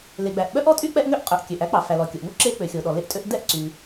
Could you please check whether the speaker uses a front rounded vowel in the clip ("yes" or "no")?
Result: yes